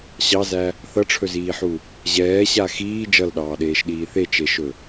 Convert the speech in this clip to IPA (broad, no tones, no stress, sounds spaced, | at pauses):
ɕ ɑ z æ | θ ʌ ʈ͡ʂʰ ɵ z iː ħ u | ʑ ɛː ɕ a x iː d͡ʒ ʌ l ɗ ɑː ɗ eː ʃ ɗ iː θ e t͡ʃ e ʃ ɵ